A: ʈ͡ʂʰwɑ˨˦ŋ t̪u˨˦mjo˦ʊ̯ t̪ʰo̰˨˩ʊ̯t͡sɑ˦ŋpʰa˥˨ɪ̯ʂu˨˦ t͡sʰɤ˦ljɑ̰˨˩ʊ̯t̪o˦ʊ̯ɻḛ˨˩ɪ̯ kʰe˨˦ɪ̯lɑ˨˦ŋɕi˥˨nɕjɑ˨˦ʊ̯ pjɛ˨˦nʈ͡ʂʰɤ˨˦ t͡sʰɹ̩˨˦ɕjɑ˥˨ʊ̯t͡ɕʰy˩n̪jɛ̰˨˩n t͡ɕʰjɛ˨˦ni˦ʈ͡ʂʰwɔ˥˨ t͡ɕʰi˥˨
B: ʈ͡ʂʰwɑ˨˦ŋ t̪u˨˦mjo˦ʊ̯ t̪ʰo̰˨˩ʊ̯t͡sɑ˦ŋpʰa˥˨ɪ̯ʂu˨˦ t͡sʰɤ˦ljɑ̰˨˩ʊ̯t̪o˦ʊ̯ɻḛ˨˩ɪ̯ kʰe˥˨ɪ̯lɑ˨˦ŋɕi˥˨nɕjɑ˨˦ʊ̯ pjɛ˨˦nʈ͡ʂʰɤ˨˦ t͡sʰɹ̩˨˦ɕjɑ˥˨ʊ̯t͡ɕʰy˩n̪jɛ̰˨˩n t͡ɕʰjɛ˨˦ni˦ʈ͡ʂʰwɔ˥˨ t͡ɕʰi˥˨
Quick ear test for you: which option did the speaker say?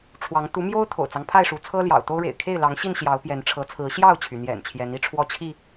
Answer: B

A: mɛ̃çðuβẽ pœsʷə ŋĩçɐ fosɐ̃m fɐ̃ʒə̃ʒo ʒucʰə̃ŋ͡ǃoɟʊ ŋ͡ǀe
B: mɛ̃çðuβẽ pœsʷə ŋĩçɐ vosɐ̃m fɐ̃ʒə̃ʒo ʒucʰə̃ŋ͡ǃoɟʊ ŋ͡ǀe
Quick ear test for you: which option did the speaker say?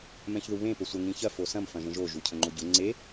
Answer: A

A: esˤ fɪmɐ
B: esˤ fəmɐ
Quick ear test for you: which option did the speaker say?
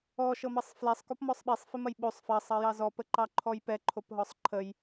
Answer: A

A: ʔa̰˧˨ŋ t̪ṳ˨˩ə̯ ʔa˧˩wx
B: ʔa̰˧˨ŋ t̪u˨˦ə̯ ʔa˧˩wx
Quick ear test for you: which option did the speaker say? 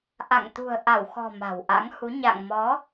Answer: A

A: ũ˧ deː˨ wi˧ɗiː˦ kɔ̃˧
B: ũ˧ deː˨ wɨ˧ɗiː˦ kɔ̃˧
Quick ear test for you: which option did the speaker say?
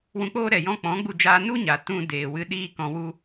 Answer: B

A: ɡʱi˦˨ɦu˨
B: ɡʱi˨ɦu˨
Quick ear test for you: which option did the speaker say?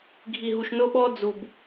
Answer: B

